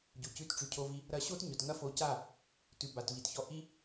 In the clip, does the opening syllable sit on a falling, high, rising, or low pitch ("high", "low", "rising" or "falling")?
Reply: low